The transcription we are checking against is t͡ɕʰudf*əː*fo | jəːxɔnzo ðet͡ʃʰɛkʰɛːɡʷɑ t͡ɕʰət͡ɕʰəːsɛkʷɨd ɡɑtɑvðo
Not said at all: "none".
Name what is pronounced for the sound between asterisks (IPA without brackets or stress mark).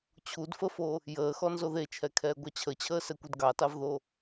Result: ə